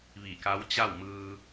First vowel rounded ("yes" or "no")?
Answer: no